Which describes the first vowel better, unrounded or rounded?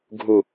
rounded